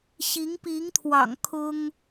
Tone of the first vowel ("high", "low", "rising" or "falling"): rising